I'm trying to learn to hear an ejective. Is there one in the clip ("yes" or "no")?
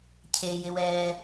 no